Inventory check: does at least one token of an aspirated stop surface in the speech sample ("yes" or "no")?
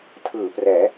yes